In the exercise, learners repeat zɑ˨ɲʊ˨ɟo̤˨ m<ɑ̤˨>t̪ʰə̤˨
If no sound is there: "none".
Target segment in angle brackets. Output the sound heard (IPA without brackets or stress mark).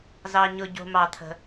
ɑ˨